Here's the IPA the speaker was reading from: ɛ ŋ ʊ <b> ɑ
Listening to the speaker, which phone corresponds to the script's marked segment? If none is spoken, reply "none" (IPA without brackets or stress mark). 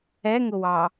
w